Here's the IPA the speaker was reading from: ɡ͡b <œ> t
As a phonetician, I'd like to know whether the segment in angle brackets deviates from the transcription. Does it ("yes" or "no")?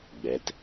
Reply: yes